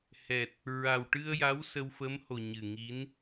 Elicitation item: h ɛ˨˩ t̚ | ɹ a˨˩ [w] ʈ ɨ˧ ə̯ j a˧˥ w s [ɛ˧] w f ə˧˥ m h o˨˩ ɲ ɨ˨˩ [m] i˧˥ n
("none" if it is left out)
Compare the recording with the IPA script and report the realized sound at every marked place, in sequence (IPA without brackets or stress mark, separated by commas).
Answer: w, ə˧, ŋ